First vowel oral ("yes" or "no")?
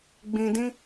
no